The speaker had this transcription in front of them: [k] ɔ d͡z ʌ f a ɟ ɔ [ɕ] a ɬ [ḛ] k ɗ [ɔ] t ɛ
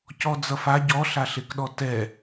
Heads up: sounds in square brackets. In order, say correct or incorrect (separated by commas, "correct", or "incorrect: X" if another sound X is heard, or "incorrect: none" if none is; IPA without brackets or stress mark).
incorrect: c, incorrect: ɬ, incorrect: e, correct